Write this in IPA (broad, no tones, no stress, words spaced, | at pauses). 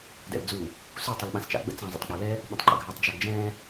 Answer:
dɛ̰ld͡zu | su tˤulɓãst͡ʃa̰ ɡ͡bə̰t͡sã zˤə̰tˤk͡palɛ | ɓə̃tˤǃə̰ɡʱœtˤ d͡ʒaɡd͡ʒɛ̃